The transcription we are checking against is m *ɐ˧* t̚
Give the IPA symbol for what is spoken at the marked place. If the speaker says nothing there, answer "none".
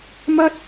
ɐ˥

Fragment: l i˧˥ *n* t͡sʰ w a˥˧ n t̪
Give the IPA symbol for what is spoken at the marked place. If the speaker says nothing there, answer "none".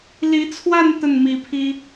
none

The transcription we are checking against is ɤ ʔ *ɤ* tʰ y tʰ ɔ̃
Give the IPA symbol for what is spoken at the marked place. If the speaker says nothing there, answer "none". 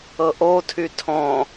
o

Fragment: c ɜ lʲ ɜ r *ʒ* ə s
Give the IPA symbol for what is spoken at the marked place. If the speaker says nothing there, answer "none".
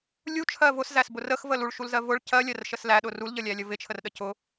ʃ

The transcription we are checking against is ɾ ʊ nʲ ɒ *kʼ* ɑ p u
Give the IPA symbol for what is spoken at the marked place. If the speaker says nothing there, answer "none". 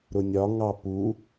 ŋ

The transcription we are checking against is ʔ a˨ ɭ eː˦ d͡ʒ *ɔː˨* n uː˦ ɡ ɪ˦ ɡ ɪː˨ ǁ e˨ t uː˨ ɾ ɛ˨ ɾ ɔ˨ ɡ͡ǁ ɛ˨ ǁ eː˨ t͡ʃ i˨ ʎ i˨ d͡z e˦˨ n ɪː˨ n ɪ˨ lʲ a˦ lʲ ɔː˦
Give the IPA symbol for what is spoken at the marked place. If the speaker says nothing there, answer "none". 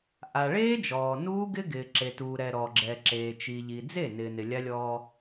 ɔː˨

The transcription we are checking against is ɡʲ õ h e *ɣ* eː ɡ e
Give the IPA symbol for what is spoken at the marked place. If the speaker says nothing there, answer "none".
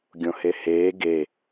h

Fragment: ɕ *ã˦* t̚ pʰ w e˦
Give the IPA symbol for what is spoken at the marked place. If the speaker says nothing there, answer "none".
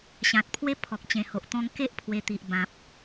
ã˨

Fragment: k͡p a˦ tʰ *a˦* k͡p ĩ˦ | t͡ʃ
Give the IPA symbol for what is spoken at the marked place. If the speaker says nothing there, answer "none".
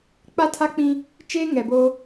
a˦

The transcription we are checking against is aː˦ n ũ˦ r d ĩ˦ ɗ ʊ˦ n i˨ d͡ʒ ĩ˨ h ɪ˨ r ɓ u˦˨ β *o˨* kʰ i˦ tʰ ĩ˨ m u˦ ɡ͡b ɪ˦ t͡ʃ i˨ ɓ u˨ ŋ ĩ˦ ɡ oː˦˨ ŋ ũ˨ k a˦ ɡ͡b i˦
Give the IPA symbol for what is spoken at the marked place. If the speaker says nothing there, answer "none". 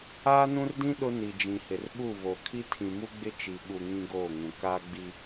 o˨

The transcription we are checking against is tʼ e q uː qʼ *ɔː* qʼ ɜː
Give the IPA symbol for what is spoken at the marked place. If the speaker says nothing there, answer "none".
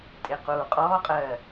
ɔː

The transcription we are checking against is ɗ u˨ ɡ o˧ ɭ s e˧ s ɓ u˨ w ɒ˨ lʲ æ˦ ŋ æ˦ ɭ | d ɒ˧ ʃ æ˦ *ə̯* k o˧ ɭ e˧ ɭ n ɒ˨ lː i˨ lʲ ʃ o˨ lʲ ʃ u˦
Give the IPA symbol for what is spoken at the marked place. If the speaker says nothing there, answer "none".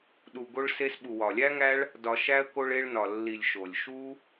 ə̯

